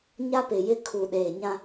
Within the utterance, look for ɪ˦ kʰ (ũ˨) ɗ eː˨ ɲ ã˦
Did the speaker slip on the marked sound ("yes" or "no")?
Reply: yes